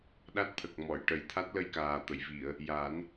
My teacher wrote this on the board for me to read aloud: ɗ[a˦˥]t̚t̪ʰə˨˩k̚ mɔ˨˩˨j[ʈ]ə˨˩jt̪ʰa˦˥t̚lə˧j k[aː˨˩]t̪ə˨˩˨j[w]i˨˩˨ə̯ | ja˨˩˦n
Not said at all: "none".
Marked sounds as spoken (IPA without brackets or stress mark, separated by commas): a˦˥, ʈ, aː˨˩, v